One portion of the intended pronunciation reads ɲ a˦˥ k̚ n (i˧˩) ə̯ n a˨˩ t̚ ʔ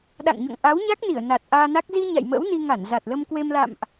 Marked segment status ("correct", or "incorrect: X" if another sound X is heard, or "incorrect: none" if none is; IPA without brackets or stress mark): correct